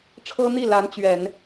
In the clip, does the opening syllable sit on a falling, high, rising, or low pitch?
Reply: high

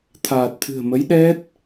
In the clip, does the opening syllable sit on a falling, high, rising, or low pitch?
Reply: low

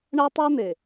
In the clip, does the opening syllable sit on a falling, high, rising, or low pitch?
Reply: high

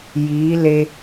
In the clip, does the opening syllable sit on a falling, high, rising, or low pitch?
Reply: rising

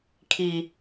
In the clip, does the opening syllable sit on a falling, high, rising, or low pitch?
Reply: low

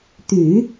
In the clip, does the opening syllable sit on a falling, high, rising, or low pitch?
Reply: low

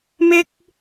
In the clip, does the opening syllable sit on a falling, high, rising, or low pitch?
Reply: high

